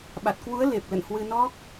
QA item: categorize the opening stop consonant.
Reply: implosive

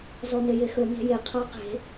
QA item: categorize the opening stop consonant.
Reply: aspirated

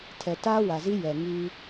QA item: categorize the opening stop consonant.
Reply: aspirated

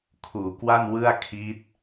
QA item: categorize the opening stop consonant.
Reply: aspirated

